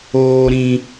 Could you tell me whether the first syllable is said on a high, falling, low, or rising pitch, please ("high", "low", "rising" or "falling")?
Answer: low